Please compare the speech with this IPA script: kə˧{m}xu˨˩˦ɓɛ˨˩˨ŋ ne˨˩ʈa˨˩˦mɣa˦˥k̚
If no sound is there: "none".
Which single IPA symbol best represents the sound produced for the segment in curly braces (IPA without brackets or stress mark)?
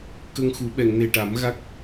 ŋ